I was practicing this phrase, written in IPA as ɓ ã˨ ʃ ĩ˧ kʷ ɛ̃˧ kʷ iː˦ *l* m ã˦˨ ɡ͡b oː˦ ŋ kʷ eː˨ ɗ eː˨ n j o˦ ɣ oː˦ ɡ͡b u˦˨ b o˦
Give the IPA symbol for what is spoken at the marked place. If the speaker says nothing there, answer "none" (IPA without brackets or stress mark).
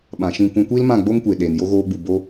l